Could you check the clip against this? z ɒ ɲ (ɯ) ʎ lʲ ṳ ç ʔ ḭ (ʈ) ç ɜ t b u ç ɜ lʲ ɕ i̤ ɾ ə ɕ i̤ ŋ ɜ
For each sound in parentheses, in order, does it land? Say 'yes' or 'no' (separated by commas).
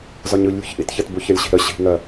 yes, no